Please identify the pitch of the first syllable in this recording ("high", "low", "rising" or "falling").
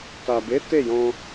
low